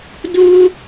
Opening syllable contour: high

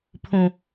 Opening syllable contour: high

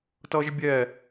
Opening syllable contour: high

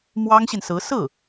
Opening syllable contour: high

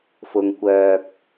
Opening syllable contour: low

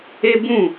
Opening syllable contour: high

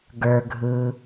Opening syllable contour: low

